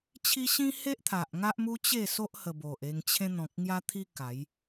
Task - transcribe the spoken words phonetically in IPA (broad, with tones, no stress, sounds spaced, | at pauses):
t͡ɕʰ i˦ ɕ ĩ˦ h e˦ ʔ t̪ʰ a˨ ʔ ŋ a˦ ʔ m u˦ t͡ɕ e˥˧ s o˦ ʔ h ə˧ b o˨ ʔ e˧ ŋ t͡ɕʰ ẽ˦ n̪ ɔ̃˨ k̚ ŋ j a˦ t̪ʰ i˦ k a˨˦ j